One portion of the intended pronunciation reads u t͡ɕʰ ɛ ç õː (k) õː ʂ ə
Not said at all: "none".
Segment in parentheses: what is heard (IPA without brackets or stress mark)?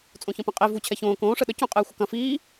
k